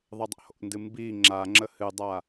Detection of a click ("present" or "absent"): present